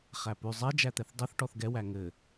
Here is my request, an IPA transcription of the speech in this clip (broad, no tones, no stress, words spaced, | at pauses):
χæpʉ zˤɛ d͡ʒæt̪ɛθdˤɘθ ʈɔθɡɛ wæŋɘ